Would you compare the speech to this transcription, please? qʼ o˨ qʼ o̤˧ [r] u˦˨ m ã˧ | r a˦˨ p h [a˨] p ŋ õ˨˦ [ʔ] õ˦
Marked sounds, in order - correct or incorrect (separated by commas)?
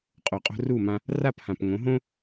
correct, incorrect, incorrect